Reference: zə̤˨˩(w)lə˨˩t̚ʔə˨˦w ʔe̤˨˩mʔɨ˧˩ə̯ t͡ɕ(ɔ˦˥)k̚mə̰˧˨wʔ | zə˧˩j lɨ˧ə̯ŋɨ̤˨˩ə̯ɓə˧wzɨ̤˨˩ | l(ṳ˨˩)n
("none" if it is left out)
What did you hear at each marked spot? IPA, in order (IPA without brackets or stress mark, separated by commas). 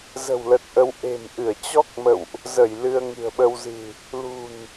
w, ɔ˦˥, ṳ˨˩